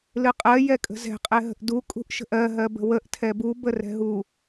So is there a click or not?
no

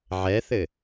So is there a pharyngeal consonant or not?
yes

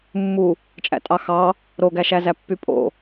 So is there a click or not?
no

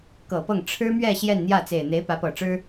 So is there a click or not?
no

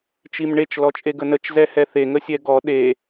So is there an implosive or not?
yes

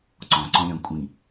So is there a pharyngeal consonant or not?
no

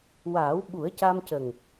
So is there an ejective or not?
no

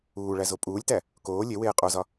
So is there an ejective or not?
yes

